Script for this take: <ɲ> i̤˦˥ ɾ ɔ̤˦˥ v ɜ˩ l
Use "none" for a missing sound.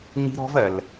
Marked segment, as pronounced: ɲ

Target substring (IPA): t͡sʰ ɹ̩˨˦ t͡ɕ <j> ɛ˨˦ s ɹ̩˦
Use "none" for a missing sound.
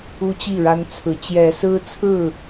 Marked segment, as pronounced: j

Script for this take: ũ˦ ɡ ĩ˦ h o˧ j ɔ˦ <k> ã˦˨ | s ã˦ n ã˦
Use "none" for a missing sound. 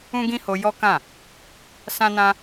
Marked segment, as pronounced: k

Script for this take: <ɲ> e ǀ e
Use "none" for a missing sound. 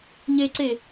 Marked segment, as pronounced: ɲ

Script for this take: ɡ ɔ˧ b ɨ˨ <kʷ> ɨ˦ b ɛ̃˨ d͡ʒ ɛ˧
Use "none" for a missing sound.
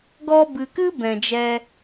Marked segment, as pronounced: k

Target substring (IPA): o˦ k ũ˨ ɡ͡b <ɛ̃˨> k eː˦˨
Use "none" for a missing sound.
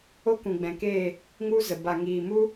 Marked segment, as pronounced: ɛ̃˨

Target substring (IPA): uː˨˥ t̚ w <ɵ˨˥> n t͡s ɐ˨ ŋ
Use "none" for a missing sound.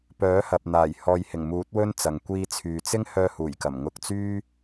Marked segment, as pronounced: ɵ˥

